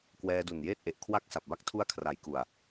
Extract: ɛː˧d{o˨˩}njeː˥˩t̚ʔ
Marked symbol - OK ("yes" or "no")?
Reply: no